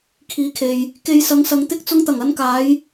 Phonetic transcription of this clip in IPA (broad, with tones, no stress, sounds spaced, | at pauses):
kʰ iː˨˥ kʰ e˨ j | k e˧ j s ɐ˨˧ ŋ s ɐ˨ ŋ t̪ ɪ˥ k̚ t͡s ʊ˧ ŋ t̪ ɐ˨˩ ŋ ɐ˨˧ n k aː˨˧ j